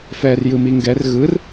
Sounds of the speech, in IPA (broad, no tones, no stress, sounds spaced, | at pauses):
f ɛː r j ɯ m i ŋ ɡ ɛ r ɣ ɯ r